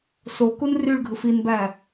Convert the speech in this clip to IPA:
s o k u n r y ɭ ɡʱ ɯ f i n b æ

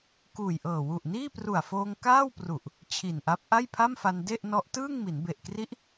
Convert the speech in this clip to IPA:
k uː˨˩ j ʔ ɤː˨˩ w u˨˩ ʔ n iː˥˩ p r u˨˩ a̯ f oː˧ ŋ k aː˥˩ w p r u˨˩ ʔ | t͡ɕʰ i˨˩ n ʔ a˦˥ p̚ ʔ a˥˩ j pʰ a˥˩ m f a˧ n d e˥˩ ʔ n ɔ˦˥ ʔ t ɯː˥˩ ŋ m i˩˦ n b e˨˩ ʔ k r i˦˥ ʔ

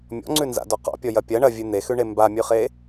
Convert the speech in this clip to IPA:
mʲ ɔ̰ ŋ͡ǀ ʉ n z a̰ d ɔ q ɔ̰ pʲ ɔ j ɐ pʲ ɐ ɳ ɐ vʲ ʉ n̪ e x ʉ ɳ e m b a mʲ ʉ χ e

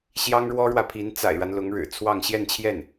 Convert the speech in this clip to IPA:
ɕ j ɑ˥ ŋ ɻ w ɔ˥ ɻ w ä˨ pʰ i˧˥ n t͡s a̰˨˩ ɪ̯ ɻ a˦ n l ʊ˧˥ ŋ ɻ ɻ̩˨˩ t͡sʰ w ɑ˥˧ ŋ ɕ j ɛ˥˧ n t͡ɕʰ j ɛ˥˩ n

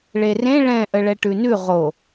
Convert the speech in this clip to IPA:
ɭ e r ẽ ɭ ɛ̃ ʔ ə ɭ ɛ ʈ ʉ n ʉ ʁ o

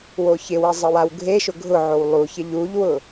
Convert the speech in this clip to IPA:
w o ç ɪ w e zˤ ɪ w a w ɡʱ e ʃ ʊ ɡʱ ʊ ʕ o w lˠ u ç ɪ ʎ u ʎ w ʊ

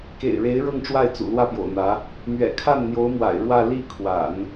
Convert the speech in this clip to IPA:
k ḛ˨˩ ɪ̯ ɻ e˧˥ ɪ̯ ɻ ɤ˥˧ ŋ ʈ͡ʂ w a˥˩ ɪ̯ t͡s ṵ˨˩ l w ä˥˩ p j o̰˨˩ ʊ̯ n̪ ä˧˥ | m ɥ ɛ̰˨˩ kʰ a˥˩ n n̪ j o˧˥ ʊ̯ m w a̰˨˩ ɪ̯ ɻ w ä˥˧ l i˥˩ kʰ w a̰˨˩˦ n

